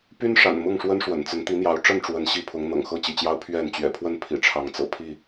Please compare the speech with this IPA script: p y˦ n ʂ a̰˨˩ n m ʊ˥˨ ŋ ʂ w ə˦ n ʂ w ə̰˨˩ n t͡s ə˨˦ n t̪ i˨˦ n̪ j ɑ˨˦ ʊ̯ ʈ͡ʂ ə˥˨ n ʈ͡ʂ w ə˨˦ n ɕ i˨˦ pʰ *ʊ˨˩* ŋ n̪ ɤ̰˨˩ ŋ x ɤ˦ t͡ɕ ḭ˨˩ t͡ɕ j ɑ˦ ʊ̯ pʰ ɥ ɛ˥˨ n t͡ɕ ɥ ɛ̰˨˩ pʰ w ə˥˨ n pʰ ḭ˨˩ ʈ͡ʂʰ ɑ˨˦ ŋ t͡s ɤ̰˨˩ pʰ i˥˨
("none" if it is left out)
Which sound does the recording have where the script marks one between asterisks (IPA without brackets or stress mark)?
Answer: ʊ˨˦